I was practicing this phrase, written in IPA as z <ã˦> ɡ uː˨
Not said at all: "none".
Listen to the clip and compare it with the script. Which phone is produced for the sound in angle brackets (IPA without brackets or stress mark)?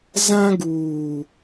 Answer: ã˦